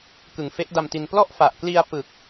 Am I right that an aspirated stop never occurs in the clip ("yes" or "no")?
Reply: yes